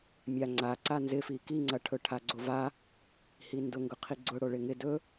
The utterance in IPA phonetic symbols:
mʲ a ŋ͡ǀ a ǀ a n z ɪ f i k i ŋ͡ǀ ɐ ʈʰ ɵ ʈʰ a ɡ͡ǀ o v a | h i n d ʊ ŋ ɡ ʊ qʰ i ɡ͡ǀ ʊ ɽ o ɭ ɪ ŋ ɪ d ɵ

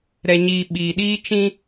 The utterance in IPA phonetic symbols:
ɾ ɛ˨ ɲ iː˨ ɓ iː˨ ɗ iː˦ t͡ʃ ĩ˦

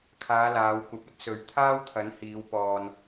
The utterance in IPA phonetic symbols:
kʰ aː˨˧ l aː˨˧ w kʷ ɐ˧ p̚ ɐ˥ t̚ s ɵ˧ ɥ t̪ʰ aː˥ w t̪ʰ ɐ˨˥ n h iː˨˧ w p ɔː˧ n

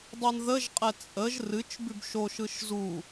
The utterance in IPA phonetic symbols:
dˤ ɨ n ð ə ʒ qʼ ɛ t͡sʼ ə ʒ r ɨ t͡ʃ b ʉ b ʃ o ʃ ɯ ʃ z u

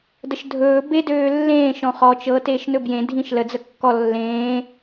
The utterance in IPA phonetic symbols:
d ə ʃ dʱ ɵː b e d øː lː ẽː ʃ ɔ̃ χ ɔ t͡ʃ ɤ t eː ʃ n ɵ b j ẽ dʱ ĩ ʃ l ə d͡z ə kː ɔ lː ẽː

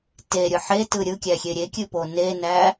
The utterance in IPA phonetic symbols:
t e ɾʲ ɯ ħ e t ɯ ɾʲ ɯ kʲ æ xʲ e ɾʲ e kʲ ɨ p o n e n æ

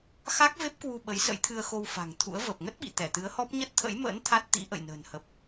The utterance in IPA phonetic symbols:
x a˦˥ k̚ v e˦˥ p̚ k w u˧ ɓ ə˨˦ j s ə̰˧˥ j t̪ʰ ɨ˧ ə̯ x o˧ w f a̤˨˩ ŋ t̪ʰ ṵ˧˥ ə̯ v əː˨˩ p̚ ŋ ə˦˥ t̚ ɓ ḭ˧˨ t̪ ɛ˧˩ t̪ ɨ˨˦ ə̯ h ɔ˦˥ p̚ ɲ ə˦˥ t̚ t̪ʰ ə̰˧˥ j m ə̰ː˧˥ n t̪ʰ a˦˥ t̚ t̪ ḭ˧˥ ʔ ə̰˧˨ j n ə̤ː˨˩ n h ə˨˩ p̚

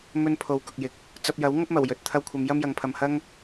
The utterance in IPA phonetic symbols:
m ɵ˥ n pʰ o˨˧ w k ʊ˨ k̚ j ɪ˨ k̚ | t͡s ɐ˧ p̚ j ɐ˨˥ w ŋ ɐ˥ p̚ m ɐ˨˩ w j ɵ˨ t̚ t̪ʰ ɐ˧ w kʷʰ ɐ˨˧ m j ɐ˥ m j ɐ˨ ŋ pʰ ɐ˨ m h ɐ˥ ŋ

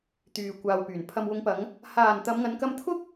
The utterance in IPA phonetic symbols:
t̪ yː˨ kʷ aː˨ w p yː˨˩ n pʰ ɐ˨ m w ʊ˨˧ ŋ p ɐ˨˧ ŋ | h aː˨˩ n t̪ ɐ˨˧ m ŋ ɐ˨˧ n k ɐ˧ m t̪ʰ ʊ˥ k̚

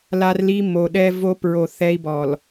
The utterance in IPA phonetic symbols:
l a˦ r l i˦ m o˨ ɗ ɛ˦ v o˦ p ɹ o˨ θ ɛ˦ i̯ b ɔ˨ l

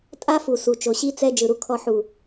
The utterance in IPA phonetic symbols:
tʼ a˦ f u˨ s u˨ t͡ʃ o˨ ɕ i˦ t͡s ɛ˦ d͡ʒ ɯ˨ ɾ u˧ kʰ ɔ˧ ħ u˨

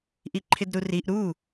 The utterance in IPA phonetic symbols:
ʔ i ǃʰ ɪ d ɾ u r i ʔ ɾ u

